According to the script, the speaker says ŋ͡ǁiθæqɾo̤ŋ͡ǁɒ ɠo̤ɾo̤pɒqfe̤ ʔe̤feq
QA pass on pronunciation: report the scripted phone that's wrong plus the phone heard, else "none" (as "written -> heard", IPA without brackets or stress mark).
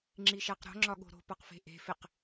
θ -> ʃ